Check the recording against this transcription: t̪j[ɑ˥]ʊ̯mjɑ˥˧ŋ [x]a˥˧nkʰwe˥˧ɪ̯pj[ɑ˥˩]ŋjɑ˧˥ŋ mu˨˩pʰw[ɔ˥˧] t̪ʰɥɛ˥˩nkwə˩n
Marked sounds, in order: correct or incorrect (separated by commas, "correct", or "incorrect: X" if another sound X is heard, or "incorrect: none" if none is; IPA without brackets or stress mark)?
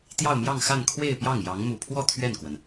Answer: incorrect: ɑ˥˧, correct, correct, correct